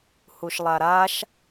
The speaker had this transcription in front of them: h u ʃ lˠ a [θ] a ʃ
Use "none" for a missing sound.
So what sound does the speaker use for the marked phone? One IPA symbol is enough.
ɾ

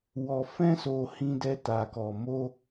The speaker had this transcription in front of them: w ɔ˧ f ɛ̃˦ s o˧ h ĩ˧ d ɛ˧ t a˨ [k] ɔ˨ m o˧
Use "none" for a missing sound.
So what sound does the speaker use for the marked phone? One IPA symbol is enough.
k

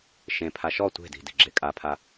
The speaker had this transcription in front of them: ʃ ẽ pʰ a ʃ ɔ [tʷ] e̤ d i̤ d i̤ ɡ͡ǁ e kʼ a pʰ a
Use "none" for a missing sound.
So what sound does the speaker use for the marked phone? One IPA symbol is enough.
tʷ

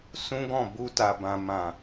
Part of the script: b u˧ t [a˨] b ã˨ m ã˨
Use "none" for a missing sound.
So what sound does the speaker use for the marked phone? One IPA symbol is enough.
a˨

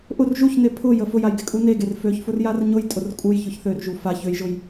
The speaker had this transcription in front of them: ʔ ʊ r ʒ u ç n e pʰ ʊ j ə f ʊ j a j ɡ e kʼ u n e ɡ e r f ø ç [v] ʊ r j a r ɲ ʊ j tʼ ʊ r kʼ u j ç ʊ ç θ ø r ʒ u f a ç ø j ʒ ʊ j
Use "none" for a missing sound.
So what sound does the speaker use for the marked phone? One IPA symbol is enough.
f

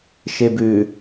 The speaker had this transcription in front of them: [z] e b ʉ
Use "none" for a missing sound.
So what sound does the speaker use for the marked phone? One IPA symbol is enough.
ʃ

